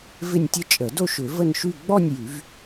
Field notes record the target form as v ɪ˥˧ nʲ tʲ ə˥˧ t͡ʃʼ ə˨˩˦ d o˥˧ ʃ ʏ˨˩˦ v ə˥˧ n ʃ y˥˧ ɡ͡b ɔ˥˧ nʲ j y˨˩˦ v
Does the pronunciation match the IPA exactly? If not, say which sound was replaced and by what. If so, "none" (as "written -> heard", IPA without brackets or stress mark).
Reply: none